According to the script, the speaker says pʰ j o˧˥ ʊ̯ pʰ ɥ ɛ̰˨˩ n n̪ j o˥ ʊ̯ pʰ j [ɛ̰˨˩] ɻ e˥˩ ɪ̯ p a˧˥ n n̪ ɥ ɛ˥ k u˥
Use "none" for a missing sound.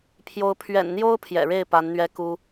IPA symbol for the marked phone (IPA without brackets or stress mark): ɛ̰˨˩